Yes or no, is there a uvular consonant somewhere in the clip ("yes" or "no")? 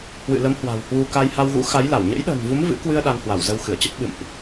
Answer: no